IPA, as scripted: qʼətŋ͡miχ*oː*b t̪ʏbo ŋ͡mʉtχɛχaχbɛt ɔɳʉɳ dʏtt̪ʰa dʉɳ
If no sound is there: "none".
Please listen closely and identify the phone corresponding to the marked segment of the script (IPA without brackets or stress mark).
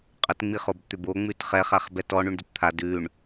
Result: o